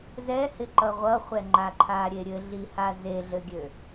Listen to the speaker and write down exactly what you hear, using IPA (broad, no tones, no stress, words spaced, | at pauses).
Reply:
zɛhɪǃʌ ʁʷʌχʷɛŋ͡ǃaǃʰa ɾʲeɾʲɘɮi hazeɮɘɡʲø